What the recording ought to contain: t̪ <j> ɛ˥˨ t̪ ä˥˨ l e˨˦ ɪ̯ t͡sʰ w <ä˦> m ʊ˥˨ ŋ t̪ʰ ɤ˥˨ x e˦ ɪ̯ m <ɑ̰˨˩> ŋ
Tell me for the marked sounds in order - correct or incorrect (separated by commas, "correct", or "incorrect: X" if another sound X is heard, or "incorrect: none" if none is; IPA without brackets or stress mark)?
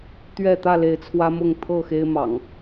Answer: incorrect: ɥ, correct, correct